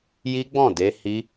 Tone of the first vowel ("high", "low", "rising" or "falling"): high